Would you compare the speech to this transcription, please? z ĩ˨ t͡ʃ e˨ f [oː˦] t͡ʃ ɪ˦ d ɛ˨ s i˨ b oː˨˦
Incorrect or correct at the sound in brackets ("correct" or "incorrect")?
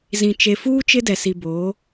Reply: incorrect